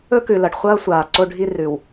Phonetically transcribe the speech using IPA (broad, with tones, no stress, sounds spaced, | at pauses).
ɵ˦ k ʉ˨ l ɐ˨ ɖ χʷ ɐː˦ sʷ aː˨ ǀ o˦ ɖʱ i˦ r ʉ˨ w